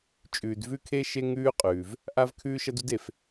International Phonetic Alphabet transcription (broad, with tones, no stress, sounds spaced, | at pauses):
t͡ʃʼ ʉː˨ d v ʉ˥ kʰ e˥ ʃ e˥ ŋ ʉː˥ qʼ ʉː˩ v | ʔ a˥ v kʰ ʉː˥ ʃ ɐ˥ d u˥ d e˩ f